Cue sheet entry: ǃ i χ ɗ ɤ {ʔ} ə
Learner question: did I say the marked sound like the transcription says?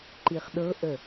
yes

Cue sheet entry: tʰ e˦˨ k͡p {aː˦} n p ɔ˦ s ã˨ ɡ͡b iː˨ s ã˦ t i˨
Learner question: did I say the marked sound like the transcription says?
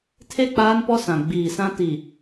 yes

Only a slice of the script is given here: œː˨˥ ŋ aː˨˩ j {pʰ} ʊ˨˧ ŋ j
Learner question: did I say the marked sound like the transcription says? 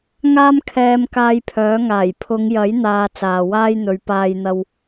yes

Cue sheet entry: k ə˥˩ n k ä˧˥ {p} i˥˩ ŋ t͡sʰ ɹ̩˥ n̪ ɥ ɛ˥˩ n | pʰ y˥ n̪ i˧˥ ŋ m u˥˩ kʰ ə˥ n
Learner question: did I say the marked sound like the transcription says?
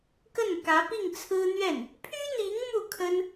yes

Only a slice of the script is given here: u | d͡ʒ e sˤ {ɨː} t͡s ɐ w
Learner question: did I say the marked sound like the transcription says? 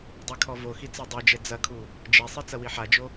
no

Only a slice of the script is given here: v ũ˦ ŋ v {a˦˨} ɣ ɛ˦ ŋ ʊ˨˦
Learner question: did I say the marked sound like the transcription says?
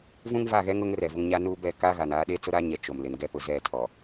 yes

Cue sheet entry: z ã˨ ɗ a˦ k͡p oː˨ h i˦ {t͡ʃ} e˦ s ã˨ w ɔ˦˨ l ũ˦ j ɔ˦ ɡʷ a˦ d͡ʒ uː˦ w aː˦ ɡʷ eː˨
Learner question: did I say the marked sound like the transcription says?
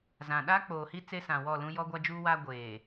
no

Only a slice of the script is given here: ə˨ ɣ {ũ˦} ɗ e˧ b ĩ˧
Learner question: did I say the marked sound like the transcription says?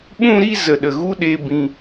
no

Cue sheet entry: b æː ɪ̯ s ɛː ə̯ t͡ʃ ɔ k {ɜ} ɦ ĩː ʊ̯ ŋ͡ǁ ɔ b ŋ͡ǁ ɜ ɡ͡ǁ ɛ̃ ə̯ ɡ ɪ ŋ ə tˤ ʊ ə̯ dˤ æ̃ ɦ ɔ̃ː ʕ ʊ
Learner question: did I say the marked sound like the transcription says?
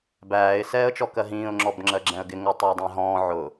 yes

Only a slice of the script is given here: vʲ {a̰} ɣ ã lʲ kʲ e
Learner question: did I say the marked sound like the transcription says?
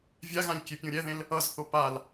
no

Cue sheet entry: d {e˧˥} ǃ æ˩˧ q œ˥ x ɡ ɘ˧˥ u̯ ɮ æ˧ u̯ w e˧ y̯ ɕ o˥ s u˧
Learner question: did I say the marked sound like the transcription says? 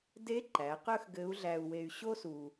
yes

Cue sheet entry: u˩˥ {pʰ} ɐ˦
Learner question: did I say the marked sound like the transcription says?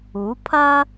yes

